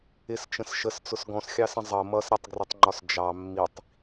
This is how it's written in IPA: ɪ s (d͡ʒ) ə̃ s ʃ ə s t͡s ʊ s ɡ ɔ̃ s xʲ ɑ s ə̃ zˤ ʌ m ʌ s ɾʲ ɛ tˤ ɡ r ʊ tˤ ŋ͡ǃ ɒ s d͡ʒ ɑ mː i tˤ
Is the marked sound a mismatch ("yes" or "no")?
yes